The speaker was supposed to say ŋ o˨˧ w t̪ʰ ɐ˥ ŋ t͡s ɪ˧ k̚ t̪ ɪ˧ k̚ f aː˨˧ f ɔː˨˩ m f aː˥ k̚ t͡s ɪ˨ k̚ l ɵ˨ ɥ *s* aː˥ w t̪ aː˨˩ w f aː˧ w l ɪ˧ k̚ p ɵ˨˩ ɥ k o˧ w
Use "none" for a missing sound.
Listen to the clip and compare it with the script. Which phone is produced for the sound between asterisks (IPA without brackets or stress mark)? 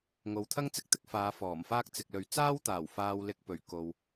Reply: t͡s